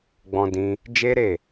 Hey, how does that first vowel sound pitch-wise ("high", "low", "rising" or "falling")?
high